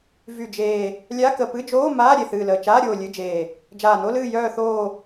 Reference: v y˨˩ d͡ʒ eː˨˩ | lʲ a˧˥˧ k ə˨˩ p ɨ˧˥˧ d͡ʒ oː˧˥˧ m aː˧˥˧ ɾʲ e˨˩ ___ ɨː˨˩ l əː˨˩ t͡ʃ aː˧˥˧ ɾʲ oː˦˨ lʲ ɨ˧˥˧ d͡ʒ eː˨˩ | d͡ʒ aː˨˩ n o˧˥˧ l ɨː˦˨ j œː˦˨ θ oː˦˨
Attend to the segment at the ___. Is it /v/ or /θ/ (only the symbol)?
θ